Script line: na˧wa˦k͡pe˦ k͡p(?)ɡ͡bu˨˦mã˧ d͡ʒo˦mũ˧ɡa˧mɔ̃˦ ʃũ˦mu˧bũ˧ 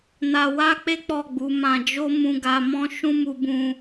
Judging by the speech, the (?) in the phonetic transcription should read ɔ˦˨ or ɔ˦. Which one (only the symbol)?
ɔ˦˨